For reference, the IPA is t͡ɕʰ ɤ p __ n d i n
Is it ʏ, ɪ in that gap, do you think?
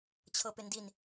ɪ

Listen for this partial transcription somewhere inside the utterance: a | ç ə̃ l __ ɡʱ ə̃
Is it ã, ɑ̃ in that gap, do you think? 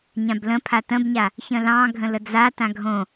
ɑ̃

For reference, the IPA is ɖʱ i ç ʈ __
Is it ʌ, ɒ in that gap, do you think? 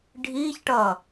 ʌ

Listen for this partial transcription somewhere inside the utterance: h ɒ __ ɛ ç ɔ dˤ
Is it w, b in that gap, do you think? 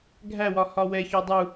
w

